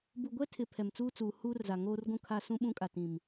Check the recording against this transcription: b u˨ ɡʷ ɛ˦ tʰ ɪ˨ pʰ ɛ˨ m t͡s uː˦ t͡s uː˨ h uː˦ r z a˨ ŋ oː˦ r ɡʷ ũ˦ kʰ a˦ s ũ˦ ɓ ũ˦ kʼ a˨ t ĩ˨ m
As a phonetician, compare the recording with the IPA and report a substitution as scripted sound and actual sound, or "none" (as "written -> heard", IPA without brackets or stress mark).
none